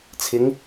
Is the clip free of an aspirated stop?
no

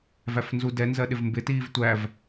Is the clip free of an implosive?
no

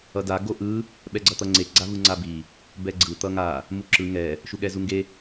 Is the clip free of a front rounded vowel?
yes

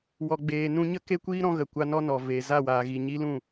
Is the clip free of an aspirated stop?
yes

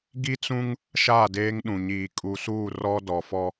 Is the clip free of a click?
yes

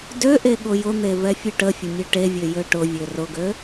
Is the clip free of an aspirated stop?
yes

